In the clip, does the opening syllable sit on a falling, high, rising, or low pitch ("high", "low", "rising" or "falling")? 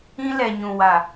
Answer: high